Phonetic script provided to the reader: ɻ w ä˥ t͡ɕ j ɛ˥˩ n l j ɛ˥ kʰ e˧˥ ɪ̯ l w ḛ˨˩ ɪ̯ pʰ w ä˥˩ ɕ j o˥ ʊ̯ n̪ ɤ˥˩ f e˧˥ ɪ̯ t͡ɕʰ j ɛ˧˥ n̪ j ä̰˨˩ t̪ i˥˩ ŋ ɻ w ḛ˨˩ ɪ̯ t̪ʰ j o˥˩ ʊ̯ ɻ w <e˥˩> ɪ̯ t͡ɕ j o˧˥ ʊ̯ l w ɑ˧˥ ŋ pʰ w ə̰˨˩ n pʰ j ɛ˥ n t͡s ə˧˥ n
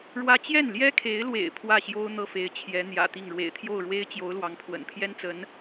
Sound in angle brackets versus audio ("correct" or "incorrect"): incorrect